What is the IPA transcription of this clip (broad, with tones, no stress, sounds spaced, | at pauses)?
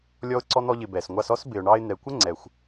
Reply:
lʲ ɔ˧ ʊ̯ ǀ ɔ˧ n̪ ɔ˧ ʎ ɪ˩ b ɛ˩ s ŋʷ ɑ˧ s ɔ˥ s b ɪ˩ ʊ̯ ɳ ɑ˧ ɪ̯ n̪ ɛ˩ kʷ ə˥ ŋ͡ǀ ɛ˩ xʷ